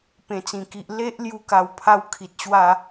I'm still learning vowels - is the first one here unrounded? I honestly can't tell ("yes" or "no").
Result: yes